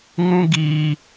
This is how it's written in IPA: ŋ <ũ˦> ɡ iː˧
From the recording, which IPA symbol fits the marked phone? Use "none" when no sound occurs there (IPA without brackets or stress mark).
ũ˦